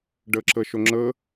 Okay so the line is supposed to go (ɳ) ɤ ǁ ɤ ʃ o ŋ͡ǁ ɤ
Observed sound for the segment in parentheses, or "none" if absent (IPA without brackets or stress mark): ɖ